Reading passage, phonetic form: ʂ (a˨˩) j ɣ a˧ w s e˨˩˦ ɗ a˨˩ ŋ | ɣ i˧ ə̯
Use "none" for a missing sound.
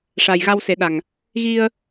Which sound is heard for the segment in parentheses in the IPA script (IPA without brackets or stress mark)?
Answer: a˨˩